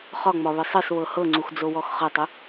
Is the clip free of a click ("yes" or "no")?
no